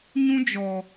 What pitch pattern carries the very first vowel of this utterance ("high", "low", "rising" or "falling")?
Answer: high